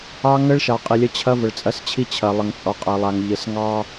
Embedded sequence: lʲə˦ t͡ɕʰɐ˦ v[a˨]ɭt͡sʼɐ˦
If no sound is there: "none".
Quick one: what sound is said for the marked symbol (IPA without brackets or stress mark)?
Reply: ə˨